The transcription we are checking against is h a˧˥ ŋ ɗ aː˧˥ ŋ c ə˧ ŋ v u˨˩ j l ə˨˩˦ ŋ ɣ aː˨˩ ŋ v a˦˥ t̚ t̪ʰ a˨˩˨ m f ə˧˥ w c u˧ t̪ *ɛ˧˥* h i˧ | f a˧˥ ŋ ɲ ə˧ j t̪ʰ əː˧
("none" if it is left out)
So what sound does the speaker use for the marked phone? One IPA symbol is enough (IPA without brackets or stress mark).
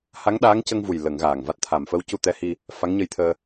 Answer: ɛ˧˥